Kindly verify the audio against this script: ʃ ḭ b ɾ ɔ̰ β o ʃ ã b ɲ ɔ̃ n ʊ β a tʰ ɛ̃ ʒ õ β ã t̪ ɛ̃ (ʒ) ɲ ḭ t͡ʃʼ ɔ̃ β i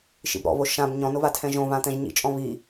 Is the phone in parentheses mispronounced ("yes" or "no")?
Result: no